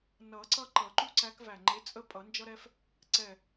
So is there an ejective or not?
yes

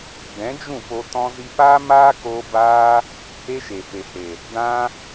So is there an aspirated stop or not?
no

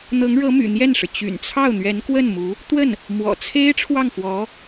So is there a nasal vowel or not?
no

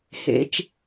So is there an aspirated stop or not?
no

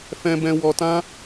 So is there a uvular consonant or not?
no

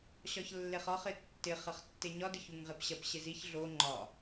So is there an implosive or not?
no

